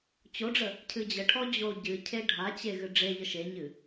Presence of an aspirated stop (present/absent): present